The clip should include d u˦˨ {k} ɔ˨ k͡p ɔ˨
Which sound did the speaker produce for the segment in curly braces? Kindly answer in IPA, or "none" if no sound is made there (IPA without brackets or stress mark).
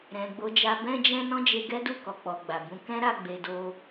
k